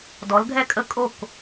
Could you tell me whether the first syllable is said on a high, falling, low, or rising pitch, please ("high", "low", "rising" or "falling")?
rising